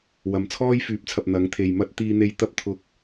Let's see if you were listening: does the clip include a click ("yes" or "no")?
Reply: no